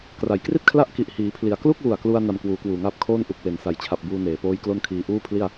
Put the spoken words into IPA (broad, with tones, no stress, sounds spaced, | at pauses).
k r a˩˦ j k r i˥˩ t̚ kʰ l a˦˥ ʔ k i˨˩ ʔ h iː˩˦ pʰ l i˩˦ a̯ k l u˥˩ k̚ w u˨˩ a̯ k l u˧ a̯ n a˧ m k w uː˩˦ k w uː˨˩ ŋ aː˥˩ p̚ kʰ oː˥˩ n ʔ u˨˩ k̚ w e˨˩ n s a˨˩ j t͡ɕʰ a˨˩ p̚ b uː˧ n eː˩˦ p oː˦˥ j k l o˥˩ n kʰ iː˧ ʔ uː˥˩ pʰ l i˥˩ a̯